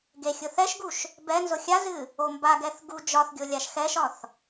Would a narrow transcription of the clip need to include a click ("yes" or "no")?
no